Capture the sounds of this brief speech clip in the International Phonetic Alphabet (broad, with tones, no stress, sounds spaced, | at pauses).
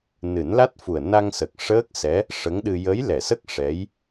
n ɨ˨˩˦ n l a˦˥ t̚ f u˨˩ ə̯ n a˧ ŋ s ə˨˩ k̚ ʂ əː˦˥ k̚ s ɛ˧˥ | ʂ ə˧˥ ŋ ɗ ɨ˧ j ə˧˥ j l ɛ˨˩˨ s ə˦˥ k̚ ʂ ɛ˧˥ j